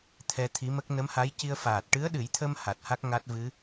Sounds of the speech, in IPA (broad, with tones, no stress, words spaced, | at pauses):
t̪ʰɛ˧t̪ʰi˧˥mə˦˥k̚ nə˧˥mha˧˥jci˧ə̯ faː˨˩t̚ʈɨ˧˥ə̯ɗɨ˨˩˦jt̪ʰə˧m ha˨˩t̚ha˦˥k̚ ŋa˦˥t̚ vɨ˧˥